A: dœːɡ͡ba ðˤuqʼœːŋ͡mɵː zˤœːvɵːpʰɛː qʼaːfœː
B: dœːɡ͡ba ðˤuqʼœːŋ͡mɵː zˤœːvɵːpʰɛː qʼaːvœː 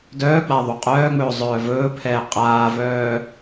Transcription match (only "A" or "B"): B